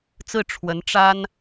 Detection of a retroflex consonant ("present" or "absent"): present